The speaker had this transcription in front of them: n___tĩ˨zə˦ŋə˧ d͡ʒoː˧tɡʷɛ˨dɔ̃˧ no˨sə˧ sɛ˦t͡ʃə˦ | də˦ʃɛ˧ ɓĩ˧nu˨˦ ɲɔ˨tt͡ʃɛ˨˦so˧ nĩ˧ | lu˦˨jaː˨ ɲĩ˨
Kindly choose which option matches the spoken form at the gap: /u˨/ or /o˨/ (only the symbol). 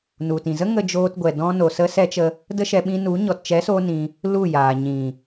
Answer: u˨